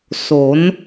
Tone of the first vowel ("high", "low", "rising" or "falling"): rising